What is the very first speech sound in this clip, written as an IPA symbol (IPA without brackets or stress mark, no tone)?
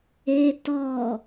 e